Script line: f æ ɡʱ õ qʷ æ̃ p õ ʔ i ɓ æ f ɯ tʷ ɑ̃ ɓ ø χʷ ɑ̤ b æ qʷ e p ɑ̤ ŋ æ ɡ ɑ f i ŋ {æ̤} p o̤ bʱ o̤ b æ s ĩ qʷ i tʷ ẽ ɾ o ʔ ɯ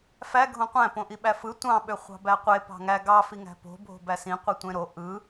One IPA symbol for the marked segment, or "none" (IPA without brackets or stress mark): æ̤